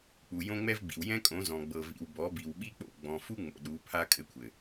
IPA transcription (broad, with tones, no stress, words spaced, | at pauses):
k͡pu˨jõ˦ŋ͡mɛ˦vɡ͡bḭ˨w jɛ̃˦kʼõ˨˦zɔ̃˨ ɡ͡bɤ˨vḭ˨w bɔ˨˦bi˨wɓi˦k͡po̰˦˨ ɡ͡bɔ̃˨ fu˦ŋ͡mo̰˨ ɗu˨˦pʰa˦kʼɘ˦kʷʰɘ˨